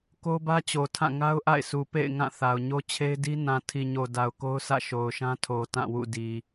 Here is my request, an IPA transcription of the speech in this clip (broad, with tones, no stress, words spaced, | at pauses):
ko˦bä˦t͡ɕo˨tʰã˦˨ ŋa˦ʊ̯ʔa̰˦˨ɪ̯sʰu˨pḛ˦˨ɪ̯ ŋã˦˨ θa˨ʊ̯ ɲo˦t͡ɕʰe˦ɪ̯di˦ nã˨tʰi˨ɲo˨ da˨ʊ̯ko˦ʊ̯sʰä̰˦˨ ʃo˨ʊ̯ʃã˦tʰo˨ tã˦˨wṵ˦˨ di˨